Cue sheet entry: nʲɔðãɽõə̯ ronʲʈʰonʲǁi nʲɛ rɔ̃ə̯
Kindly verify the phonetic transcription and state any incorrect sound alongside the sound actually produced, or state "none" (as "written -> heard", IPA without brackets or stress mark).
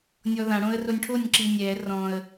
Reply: none